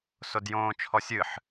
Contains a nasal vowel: yes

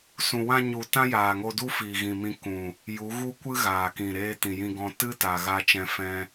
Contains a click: no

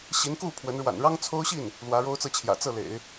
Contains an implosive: no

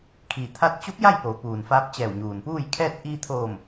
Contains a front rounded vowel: no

